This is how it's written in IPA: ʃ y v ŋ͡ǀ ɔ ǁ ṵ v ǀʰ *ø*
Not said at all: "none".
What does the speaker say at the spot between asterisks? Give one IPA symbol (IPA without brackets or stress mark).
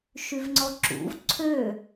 ø